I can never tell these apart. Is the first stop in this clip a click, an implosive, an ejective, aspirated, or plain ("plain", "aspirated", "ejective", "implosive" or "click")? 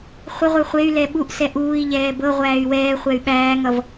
implosive